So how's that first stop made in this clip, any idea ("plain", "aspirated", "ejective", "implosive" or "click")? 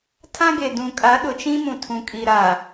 aspirated